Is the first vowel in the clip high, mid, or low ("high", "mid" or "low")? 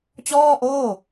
mid